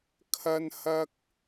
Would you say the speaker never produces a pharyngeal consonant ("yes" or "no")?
yes